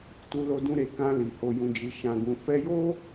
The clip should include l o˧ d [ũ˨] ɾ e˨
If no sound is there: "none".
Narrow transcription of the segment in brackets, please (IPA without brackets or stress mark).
ũ˧